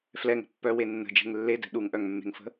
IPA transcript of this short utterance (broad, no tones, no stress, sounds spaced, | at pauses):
f l ɛ ŋ ə̤ pː œ w e nː ə̤ d͡ʒ e̤ ŋ lː e d ɛ̤ ɗ u ŋ ʔ œ ŋ mː e̤ ŋ f ə̤